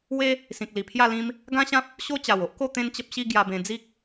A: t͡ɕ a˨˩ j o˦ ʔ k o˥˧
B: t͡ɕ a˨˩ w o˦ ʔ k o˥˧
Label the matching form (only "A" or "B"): B